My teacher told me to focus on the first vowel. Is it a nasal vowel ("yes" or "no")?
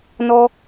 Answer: no